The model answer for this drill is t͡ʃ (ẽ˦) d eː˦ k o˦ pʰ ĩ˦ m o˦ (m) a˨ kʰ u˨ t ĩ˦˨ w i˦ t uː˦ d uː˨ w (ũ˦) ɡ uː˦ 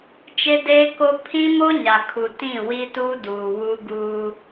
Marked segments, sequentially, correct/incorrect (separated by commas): incorrect, incorrect, incorrect